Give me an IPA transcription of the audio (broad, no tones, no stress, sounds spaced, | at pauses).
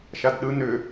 ʃ a d ɗ ɯ n ʏ